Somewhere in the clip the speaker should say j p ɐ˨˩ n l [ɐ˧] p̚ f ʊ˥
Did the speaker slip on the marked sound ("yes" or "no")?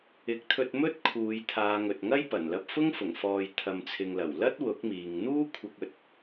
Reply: no